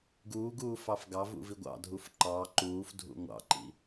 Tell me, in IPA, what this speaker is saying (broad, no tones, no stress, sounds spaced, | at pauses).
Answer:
ɡ uː ɡ uː f ɑ f ɡ ɑ v ṵ v i ɡʷ ɑ̰ dʱ u f ǃ ɑ ǃ uː f dʱ ṵ ŋʷ ɑ̰ ǃ ḭ